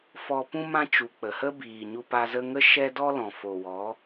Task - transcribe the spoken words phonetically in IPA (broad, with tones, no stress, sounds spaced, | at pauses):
f ɔ˧ p ũ˦ m ã˦ t͡ʃ u˨ k͡p ə˨ h ə˦ b iː˨ ɲ u˧ p a˧ z ə˦ ŋ ə˦ ʃ ɛ˦ d ɔ˦ l ɔ̃˨ f o˨ w ɔ˨˦